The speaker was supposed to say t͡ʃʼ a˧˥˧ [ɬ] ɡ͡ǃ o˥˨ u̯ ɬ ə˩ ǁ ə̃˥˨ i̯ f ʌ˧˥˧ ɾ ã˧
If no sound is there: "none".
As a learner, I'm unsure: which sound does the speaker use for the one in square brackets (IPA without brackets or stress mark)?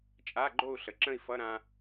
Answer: none